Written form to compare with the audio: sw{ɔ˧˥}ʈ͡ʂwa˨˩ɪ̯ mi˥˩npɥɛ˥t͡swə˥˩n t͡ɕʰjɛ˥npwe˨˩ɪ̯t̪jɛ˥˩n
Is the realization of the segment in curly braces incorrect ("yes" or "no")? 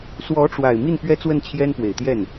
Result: no